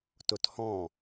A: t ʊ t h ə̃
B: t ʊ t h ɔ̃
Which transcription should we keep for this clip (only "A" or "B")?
B